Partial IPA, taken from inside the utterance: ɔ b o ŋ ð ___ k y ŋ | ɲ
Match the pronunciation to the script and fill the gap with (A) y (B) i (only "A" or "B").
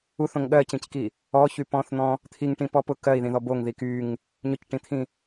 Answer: B